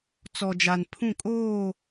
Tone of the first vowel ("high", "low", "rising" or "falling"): low